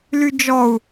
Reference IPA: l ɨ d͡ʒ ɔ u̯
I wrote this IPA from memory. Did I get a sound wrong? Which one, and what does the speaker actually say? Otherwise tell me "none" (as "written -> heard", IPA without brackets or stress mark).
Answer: ɨ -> y